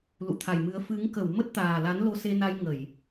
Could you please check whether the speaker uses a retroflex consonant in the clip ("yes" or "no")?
no